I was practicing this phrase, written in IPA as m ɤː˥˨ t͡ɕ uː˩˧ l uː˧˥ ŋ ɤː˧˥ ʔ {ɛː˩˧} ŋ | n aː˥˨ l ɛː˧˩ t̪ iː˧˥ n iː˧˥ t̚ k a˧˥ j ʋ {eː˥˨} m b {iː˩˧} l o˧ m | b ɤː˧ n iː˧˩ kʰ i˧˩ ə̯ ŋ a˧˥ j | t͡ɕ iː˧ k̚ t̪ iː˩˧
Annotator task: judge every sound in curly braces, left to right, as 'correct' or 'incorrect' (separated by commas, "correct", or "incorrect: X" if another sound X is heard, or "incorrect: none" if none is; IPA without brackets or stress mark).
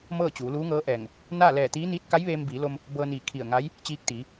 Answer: incorrect: ɛː˧˩, incorrect: eː˧, correct